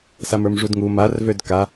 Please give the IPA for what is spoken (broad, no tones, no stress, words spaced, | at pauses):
samə˞mʐudŋu marvød ka